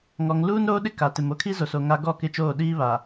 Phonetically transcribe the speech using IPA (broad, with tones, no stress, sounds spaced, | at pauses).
ŋ ɔ˨ ŋ l uː˦ n ɾ oː˦ ɗ ɪ˦ k a˨ t ɪ˨ m o˦ kʰ i˦ z o˨ s o˨ ŋ a˦ ɡ ɔ˦˨ k ɪ˦˨ t͡ʃ oː˦˨ ɗ iː˦ β a˨